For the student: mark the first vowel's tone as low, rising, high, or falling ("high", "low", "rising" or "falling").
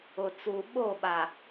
low